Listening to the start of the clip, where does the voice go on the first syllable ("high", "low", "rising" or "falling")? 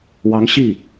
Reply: rising